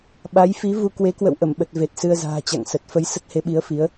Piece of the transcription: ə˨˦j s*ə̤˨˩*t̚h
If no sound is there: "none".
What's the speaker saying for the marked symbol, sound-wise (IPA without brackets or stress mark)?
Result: ə˦˥